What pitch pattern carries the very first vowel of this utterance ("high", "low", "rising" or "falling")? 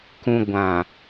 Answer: low